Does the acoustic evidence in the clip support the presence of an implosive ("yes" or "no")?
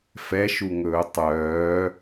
no